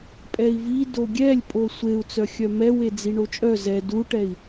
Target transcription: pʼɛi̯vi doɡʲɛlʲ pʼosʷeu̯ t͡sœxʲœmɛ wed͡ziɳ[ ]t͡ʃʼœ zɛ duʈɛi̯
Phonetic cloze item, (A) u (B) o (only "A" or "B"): B